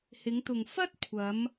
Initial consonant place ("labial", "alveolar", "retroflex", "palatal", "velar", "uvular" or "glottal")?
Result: glottal